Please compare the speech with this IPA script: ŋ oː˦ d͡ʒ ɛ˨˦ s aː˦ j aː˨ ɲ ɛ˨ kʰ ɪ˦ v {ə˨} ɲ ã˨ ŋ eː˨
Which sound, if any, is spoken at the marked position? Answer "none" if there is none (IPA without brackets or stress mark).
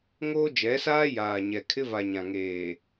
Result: a˨